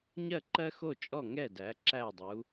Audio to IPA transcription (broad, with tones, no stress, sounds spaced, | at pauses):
ɲ ɜ˥˨ ǃ ɜ˥ x o˥˨ t͡ʃʼ ɔ˥˨ ŋ ɛ˥˨ d æ˨˥ ǁ æ˥˨ dˤ u˨˥